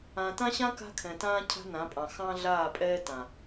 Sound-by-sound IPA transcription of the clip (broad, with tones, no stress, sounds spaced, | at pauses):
ã˨ t ã˦ ɕ ã˦ k a̤˦ kʰ ɛ̃˨ t ãː˦ cʰ a̤˦ n ã˨˦ pʼ ɑ̃˨ x ɑ̃˦ ɮ aː˦˨ pʼ ɛː˦ t ã˨